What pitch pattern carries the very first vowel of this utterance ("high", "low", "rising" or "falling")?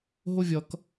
falling